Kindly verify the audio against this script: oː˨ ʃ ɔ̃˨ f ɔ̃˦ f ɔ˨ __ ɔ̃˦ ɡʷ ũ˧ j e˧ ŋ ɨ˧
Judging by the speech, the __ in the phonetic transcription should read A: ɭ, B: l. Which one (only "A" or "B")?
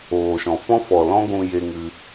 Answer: B